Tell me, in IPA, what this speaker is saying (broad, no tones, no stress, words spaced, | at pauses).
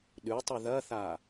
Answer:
ɗʉtˤʉ ðɐθa